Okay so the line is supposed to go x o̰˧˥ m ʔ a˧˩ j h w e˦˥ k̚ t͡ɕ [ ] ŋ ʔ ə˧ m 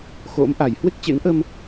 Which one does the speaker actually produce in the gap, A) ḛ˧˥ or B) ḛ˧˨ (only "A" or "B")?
A